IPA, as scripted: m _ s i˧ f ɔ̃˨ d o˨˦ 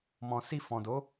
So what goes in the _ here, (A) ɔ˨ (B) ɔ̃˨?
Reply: B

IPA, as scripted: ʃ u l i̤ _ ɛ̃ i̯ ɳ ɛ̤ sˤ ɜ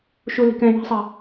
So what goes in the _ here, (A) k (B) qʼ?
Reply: A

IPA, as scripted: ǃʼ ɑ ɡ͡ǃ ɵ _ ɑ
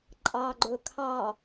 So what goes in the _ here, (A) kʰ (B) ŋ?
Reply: A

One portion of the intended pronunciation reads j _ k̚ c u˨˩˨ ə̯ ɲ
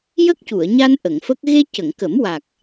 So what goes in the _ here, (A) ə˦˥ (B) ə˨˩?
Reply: A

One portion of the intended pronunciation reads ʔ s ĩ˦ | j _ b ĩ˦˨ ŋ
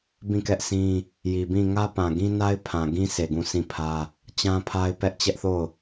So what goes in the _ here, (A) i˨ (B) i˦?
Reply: A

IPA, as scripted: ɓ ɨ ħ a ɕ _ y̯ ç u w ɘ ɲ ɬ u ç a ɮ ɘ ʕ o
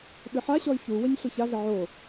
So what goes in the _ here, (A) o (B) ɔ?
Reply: B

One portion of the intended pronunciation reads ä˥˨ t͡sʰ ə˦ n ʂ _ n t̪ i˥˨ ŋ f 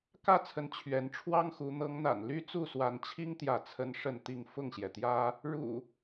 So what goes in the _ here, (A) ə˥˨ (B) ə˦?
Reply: A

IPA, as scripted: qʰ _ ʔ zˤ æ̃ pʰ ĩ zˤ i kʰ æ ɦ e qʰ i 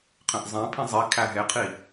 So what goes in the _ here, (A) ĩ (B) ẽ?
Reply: B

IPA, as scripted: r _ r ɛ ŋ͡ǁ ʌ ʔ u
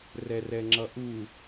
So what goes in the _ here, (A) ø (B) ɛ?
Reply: B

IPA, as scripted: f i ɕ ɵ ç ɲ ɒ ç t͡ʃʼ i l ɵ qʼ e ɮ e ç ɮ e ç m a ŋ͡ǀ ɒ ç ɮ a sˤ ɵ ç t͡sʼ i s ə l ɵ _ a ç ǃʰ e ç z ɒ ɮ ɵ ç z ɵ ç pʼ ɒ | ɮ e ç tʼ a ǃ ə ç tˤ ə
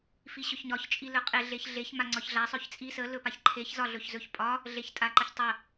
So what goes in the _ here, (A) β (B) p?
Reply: B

